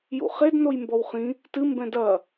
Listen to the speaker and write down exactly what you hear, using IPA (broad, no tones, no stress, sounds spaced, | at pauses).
j ṵ χ e d n o j m b ɔ w χ ĩ | t ɨ m b ɛ̃ d ɐ